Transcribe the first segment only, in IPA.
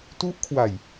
t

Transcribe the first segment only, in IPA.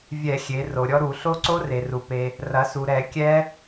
vʲ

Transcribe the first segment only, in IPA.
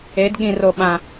e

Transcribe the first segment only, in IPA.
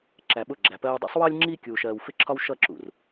ǁ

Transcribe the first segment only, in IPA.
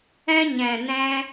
ɛ̃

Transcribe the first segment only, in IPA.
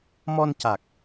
m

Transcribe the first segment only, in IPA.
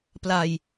p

